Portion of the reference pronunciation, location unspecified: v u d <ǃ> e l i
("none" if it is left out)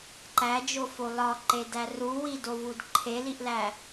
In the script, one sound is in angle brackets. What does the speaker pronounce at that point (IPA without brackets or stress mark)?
ǃʰ